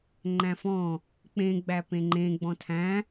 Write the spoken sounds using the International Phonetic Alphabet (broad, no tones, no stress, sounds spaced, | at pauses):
ŋ͡ǃ æ̃ f ɔ̃ | k͡p ẽ ɡ͡b æ p ẽ ŋ͡ǃ ẽ ɡ͡b ɔ̃ tʰ æ̃